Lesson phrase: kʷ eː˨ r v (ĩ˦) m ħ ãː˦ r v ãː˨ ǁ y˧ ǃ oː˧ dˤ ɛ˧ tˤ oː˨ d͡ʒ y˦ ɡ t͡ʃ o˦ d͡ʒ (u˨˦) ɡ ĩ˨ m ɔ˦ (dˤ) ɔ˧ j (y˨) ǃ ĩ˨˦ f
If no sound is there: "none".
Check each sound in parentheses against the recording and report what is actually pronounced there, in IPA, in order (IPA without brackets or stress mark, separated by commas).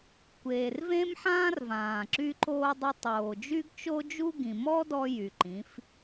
ẽ˦, u˦, d, y˨